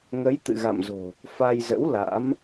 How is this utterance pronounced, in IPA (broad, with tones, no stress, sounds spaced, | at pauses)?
ŋ ə˨˦ j t̪ ɨ̰˧˨ ɣ a̰˧˨ m z o̤˨˩ | f a˧ j z ə̰˧˥ w l a̰˧˥ m